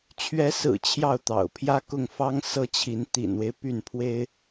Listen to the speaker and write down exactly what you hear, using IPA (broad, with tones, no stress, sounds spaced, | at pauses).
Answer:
t͡ɕʰ ɥ ɛ˧˥ s ɹ̩˨˩ t͡ɕʰ j ɑ˥˩ ʊ̯ t̪ ɑ̰˨˩ ʊ̯ pʰ j ä˥˧ k ʊ˥˩ ŋ f ɑ˥ ŋ s ɤ˥˩ t͡ɕʰ i˧˥ n t̪ ḭ˨˩ n w e˦ ɪ̯ p y˥˩ n pʰ w e˥ ɪ̯